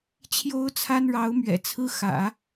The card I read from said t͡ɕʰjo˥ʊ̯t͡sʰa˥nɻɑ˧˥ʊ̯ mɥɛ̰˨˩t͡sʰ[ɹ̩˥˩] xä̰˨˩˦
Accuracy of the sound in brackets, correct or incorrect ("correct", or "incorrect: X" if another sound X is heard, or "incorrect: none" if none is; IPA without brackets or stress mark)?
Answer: incorrect: ɹ̩˥